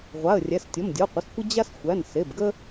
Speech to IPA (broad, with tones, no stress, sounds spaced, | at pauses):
ʁʷ a˩˧˩ ə̯ rʲ æ˩˧˩ s tʲ ɔ˩˧˩ m dʲ ɔ˩˧˩ qʷ ə˩˧˩ s kʷ ə˦ d͡ʑ a˦ s xʷ æ˩˧˩ n s e˩˧˩ b ɡ ə˦